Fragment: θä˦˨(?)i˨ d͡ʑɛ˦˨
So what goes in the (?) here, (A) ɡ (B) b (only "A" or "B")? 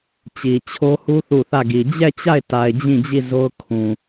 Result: A